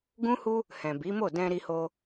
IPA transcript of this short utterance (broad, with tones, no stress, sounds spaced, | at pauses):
ɡ ũ˦ h u˦ | h ɛ̃˨ b i˨˦ m o˦˨ d ɛ̃˧ ɾ i˧ h o˧